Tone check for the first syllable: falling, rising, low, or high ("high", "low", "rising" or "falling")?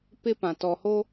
high